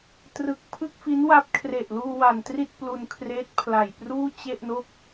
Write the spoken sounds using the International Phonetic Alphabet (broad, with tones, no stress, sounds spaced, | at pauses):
t r ɯ˨˩ k̚ pʰ ɯ˥˩ k̚ f i˦˥ n w a˦˥ p̚ kʰ r e˨˩ ʔ l uː˧ w a˨˩ n t r i˥˩ t̚ p l u˧ n kʰ r eː˦˥ t̚ pʰ l a˨˩ j p r uː˥˩ t͡ɕ e˥˩ ʔ n o˥˩ k̚